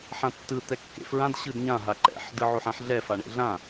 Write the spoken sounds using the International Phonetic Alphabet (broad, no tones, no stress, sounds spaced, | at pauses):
ħ ã tː ɯ t̪ ɛ kː ḛ f ɹ ã d ɕ ɯ d ɲ ã ɦ a ǃ ɛ̰ ħ d ɯ ʕ o ħ ã ħ ɮ ɛ f a ɳ ḛ ɮ ã